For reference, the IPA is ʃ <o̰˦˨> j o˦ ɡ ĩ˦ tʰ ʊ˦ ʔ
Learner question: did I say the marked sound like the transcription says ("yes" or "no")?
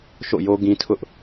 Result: yes